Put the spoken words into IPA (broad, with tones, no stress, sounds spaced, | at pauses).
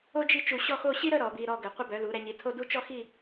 o˥ d͡ʒ i˥˧ t͡ʃ u˧˩ ɕ ɔ˥˧ x o˥˧ ɕ i˥ ɾ ə˥˧ ɾ ɔ˩˧ b i˧ ɾ ɔ˧ ɡ ə˩˧ qʷ ə˧ b œ˩˧ l u˩˧ ɾ ɛ˩˧ ɲ i˩˧ tʰ o˥˧ d u˥ t͡ʃ ɔ˥ x i˥˧